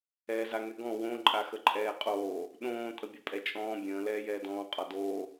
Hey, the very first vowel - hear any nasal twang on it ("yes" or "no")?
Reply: no